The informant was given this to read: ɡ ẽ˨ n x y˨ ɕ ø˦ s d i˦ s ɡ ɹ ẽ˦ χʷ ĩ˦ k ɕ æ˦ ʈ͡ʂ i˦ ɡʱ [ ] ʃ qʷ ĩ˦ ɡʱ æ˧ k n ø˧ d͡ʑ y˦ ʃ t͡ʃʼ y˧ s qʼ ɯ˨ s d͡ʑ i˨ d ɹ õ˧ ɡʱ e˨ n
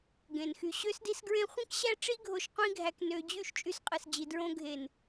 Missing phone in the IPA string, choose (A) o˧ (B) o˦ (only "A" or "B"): A